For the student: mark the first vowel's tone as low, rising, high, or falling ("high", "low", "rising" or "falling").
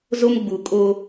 high